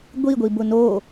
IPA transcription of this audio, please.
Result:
ɡʷ i ɡʷ i b ʊ n o

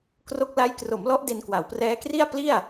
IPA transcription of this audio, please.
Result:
k r o˦˥ k̚ l a˦˥ j k r o˩˦ m l ɔ˦˥ ʔ d e˧ n k w a˩˦ w p r ɛː˦˥ k r i˥˩ a̯ p l i˥˩ a̯

